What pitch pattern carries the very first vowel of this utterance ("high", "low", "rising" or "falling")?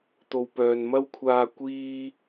low